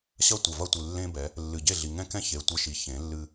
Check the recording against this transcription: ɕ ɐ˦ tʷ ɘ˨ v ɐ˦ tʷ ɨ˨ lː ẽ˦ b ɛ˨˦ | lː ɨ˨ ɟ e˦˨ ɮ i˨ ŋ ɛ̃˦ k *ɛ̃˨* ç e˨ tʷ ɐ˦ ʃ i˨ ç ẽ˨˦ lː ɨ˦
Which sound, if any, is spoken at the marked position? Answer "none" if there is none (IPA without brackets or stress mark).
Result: ɛ̃˦